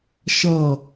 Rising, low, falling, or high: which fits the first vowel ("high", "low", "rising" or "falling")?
falling